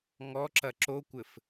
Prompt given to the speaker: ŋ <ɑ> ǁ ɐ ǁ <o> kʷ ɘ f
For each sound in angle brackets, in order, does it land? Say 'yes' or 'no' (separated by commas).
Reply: no, yes